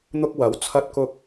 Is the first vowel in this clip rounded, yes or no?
yes